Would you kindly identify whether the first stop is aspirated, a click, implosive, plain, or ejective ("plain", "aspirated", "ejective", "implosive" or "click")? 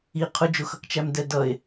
aspirated